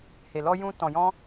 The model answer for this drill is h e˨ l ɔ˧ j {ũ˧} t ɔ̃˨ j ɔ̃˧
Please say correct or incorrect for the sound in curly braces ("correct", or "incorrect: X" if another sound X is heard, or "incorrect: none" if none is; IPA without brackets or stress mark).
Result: correct